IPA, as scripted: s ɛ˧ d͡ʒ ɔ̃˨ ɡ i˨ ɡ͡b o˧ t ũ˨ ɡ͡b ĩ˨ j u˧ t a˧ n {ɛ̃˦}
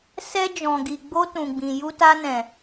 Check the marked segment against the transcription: incorrect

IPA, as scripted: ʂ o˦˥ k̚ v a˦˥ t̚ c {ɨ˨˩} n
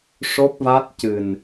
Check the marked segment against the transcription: correct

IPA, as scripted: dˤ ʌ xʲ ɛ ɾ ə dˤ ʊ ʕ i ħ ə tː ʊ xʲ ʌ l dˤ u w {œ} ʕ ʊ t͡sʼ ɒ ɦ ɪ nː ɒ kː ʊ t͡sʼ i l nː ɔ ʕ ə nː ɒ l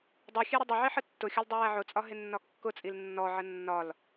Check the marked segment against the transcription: incorrect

